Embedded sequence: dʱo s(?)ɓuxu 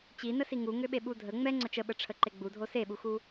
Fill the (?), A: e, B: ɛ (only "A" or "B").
A